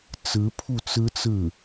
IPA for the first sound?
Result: t͡s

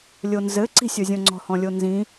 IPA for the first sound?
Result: lʲ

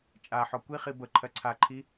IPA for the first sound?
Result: t͡ʃʼ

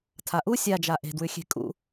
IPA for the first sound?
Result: tʰ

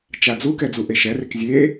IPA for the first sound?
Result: t͡ʃ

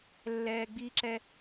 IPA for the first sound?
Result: lː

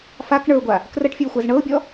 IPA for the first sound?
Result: f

